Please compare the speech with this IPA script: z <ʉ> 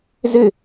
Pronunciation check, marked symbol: incorrect: ɘ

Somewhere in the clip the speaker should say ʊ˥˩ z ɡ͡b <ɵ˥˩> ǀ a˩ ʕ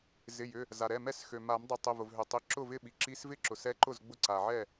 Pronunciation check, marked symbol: incorrect: ʊ˥˩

